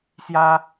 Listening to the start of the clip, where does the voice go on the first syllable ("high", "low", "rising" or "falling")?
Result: high